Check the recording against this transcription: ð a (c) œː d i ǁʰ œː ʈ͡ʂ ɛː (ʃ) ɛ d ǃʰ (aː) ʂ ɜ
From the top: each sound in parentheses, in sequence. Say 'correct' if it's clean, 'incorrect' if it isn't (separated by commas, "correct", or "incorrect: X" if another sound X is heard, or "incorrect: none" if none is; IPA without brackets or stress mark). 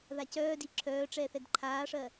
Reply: correct, incorrect: θ, correct